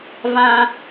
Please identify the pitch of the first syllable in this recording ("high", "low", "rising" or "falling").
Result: high